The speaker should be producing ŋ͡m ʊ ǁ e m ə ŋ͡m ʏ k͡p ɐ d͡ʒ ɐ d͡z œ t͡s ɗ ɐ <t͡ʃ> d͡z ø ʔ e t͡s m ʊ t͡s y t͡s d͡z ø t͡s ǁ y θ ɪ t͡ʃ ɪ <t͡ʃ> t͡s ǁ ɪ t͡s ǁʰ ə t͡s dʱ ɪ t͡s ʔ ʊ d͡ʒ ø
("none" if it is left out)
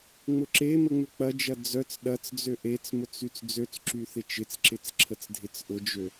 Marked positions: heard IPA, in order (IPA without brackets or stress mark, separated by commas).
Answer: t͡s, none